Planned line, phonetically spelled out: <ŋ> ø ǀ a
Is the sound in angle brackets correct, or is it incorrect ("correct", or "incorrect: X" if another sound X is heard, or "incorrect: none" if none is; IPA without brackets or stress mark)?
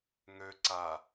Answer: correct